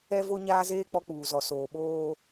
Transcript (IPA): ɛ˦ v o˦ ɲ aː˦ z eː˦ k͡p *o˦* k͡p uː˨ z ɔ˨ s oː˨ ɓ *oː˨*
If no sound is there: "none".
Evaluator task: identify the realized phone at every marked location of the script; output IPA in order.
ɔ˦, oː˦

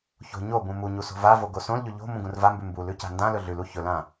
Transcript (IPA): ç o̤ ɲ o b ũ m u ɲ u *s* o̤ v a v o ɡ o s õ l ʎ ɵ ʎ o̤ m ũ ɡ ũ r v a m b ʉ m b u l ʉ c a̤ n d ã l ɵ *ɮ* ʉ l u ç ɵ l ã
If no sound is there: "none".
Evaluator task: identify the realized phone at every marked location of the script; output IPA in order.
s, ɮ

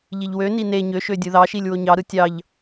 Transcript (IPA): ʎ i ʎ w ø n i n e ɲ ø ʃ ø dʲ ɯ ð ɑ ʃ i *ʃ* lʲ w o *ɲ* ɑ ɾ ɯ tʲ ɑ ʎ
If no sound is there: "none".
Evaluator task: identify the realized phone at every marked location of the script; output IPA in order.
none, ɲ

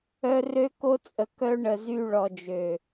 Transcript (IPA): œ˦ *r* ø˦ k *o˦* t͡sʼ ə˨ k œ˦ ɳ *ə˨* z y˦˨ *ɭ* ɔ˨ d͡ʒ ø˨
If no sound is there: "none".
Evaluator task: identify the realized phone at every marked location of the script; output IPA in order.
r, o˦, ə˨, ɭ

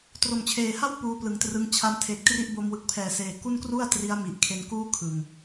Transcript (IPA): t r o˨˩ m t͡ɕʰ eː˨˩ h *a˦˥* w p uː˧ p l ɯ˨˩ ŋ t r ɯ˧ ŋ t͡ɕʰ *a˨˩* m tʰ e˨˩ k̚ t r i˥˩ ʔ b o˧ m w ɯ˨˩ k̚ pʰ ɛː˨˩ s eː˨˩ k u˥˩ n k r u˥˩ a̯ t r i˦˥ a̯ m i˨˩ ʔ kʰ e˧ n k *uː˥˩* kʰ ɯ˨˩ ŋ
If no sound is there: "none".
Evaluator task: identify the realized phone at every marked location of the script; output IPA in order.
a˥˩, a˧, uː˥˩

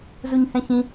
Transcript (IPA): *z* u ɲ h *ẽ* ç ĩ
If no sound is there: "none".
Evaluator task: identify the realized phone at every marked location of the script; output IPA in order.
z, ɛ̃

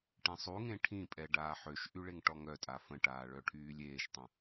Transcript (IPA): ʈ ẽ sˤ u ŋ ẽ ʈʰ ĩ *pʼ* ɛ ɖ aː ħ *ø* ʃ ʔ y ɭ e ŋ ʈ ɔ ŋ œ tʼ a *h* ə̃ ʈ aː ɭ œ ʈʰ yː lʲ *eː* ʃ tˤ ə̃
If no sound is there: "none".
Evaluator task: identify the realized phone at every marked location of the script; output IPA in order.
pʼ, ø, f, eː

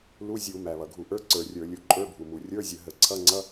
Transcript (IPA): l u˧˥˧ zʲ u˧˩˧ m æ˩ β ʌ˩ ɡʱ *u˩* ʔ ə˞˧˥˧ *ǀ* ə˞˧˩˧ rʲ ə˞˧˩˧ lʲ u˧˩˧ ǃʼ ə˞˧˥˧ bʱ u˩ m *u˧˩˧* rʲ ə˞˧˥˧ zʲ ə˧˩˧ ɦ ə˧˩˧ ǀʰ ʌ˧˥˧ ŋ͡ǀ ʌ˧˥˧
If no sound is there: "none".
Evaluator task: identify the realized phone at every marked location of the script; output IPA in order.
u˧˩˧, ǀ, u˩

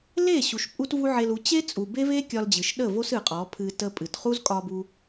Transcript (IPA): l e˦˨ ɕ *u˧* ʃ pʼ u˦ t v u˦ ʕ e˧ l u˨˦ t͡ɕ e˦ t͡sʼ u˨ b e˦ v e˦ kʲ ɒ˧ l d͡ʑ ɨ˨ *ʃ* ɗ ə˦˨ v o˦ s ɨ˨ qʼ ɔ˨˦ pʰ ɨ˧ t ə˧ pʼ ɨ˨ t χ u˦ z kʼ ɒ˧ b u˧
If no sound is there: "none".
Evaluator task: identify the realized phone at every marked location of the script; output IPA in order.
u˨, ʃ

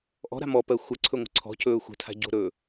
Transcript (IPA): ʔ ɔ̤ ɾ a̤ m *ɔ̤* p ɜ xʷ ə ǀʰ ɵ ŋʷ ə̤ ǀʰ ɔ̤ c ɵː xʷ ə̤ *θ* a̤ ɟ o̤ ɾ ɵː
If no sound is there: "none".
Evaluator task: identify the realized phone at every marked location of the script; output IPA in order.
ɔ, tʰ

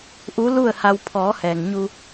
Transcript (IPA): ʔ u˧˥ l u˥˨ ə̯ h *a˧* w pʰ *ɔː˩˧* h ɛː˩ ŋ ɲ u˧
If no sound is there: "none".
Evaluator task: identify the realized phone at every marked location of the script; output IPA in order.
a˧, ɔː˩˧

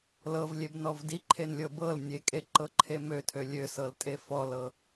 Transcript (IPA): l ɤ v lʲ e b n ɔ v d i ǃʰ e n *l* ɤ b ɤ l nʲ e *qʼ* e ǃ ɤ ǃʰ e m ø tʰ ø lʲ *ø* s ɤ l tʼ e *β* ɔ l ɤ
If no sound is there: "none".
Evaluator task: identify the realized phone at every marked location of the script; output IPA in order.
lʲ, kʼ, ø, f

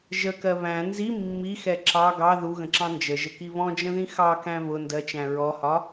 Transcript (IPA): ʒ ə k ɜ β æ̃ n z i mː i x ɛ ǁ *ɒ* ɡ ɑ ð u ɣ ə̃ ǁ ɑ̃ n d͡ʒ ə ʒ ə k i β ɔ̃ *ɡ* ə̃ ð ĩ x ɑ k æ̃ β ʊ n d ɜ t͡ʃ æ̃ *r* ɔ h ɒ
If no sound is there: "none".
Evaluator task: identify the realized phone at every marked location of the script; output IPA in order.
ɑ, d͡ʒ, ɹ

